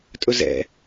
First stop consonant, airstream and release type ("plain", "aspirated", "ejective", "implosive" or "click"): ejective